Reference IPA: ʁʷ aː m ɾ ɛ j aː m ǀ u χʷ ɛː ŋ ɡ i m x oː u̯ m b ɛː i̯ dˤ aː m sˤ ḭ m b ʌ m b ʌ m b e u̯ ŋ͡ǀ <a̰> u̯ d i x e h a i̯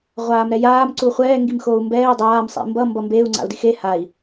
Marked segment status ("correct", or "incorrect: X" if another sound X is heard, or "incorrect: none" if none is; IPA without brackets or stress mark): correct